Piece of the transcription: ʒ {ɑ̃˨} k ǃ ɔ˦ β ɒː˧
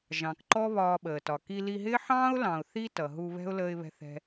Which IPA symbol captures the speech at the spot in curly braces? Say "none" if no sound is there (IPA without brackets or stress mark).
ɑ̃˨